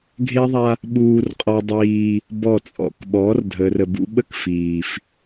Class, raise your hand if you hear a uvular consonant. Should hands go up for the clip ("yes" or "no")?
yes